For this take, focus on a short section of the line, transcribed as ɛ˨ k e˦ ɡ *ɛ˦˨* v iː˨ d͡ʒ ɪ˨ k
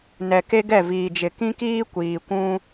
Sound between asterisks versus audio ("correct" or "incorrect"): correct